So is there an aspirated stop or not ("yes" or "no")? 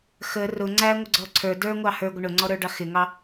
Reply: yes